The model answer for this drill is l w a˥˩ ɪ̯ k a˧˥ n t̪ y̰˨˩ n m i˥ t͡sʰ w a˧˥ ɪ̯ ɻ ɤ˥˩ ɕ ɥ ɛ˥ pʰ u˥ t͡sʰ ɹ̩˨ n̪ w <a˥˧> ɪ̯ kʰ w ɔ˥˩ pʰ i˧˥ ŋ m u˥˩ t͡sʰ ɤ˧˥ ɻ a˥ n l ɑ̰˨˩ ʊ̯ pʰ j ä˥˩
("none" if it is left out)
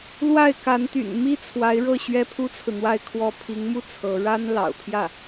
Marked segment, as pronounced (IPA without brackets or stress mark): a˥˧